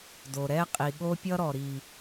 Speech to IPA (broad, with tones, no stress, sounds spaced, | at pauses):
d o˨ ɾ ɛ˦ qʼ i˨ ɠ o˦ pʲ ʌ˦ ɾ ɔ˨ ɾ i˨